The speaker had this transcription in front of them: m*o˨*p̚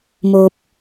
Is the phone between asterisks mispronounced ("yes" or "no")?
no